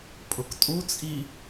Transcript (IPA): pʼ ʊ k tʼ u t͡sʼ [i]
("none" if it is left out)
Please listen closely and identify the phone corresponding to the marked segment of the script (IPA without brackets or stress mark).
i